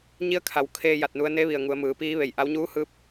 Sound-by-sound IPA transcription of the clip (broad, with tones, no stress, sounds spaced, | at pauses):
ɲ i˧ ə̯ kʰ a˩˧ w kʰ eː˧ j a˧˩ t̚ n u˧ ə̯ n e˧˥ ʋ i˩ ə̯ ŋ u˩˧ ə̯ m ɯː˩˧ p iː˧˥ ʋ e˧˩ j ʔ a˧˥ w ɲ uː˧˥ h ɯː˧˥ p̚